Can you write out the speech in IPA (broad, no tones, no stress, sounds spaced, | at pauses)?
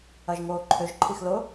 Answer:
ɐ ʒ ŋ oː ǃʰ ʏ ʒ ǃʰ i x l ʊ